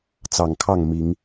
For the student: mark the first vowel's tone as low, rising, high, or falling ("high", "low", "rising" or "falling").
low